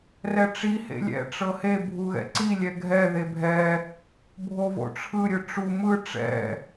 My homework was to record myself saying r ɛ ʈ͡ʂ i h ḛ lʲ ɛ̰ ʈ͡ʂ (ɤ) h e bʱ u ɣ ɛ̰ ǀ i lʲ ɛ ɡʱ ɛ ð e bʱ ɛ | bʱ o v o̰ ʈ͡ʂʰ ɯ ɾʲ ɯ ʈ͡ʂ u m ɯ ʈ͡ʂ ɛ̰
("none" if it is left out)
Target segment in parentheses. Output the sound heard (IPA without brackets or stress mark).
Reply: ɤ